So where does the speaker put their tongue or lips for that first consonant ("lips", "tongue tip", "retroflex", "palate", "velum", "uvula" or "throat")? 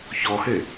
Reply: palate